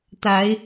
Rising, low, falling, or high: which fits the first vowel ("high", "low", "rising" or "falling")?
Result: rising